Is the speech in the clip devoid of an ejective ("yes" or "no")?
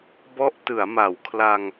yes